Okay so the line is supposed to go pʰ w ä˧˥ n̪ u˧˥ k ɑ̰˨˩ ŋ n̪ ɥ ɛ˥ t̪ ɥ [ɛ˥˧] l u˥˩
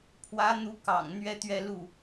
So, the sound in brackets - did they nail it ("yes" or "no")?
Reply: yes